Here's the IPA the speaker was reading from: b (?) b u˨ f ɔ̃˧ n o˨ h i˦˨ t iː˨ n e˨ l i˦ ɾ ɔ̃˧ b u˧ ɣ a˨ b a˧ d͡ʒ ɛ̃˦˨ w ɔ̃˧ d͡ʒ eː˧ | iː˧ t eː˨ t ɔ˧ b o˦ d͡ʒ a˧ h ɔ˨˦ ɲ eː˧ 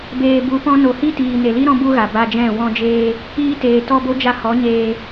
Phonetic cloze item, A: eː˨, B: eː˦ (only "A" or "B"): A